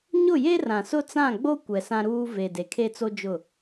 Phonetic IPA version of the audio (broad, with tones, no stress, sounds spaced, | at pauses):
ɲ ʊ˦˨ j e˦ r ã˨ s ʊ˦ t͡s ã˦˨ ɡ͡b o˦ kʷ ɛ˨ s ã˦ ɾ uː˦ v e˨ d e˨ kʰ e˦ t͡s o˦ d͡ʒ ʊ˦˨